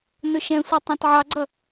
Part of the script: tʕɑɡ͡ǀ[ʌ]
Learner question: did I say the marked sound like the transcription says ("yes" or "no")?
yes